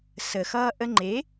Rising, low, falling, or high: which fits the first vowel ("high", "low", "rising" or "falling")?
low